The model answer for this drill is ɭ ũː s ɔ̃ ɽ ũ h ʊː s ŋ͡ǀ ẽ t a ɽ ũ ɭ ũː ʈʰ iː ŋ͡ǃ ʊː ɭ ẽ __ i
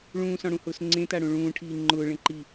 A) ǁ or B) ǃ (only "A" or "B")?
B